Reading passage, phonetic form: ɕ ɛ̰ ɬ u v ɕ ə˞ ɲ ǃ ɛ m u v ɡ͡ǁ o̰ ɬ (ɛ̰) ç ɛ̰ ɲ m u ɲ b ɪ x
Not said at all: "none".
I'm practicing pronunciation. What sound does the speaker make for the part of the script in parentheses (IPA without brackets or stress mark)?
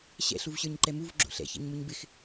ɛ̰